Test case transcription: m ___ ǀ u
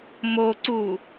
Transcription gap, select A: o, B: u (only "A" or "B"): A